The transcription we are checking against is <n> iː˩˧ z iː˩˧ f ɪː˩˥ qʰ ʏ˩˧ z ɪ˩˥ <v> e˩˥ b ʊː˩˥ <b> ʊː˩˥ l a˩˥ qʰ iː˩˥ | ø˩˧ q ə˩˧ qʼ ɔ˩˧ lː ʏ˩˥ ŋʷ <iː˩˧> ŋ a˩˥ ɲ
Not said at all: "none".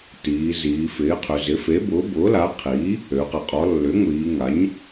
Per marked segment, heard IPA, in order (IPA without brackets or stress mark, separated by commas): t, f, b, iː˩˧